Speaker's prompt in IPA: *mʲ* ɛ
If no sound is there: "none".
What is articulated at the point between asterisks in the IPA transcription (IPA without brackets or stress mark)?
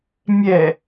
mʲ